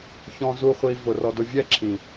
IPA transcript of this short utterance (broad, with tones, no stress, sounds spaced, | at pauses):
ç ɔ̃˧ z u˧ χʷ i˧ v ʊ˨ r ɔ˧ d ʊ˧ vʲ ɛ˦˨ ǁʰ ĩ˨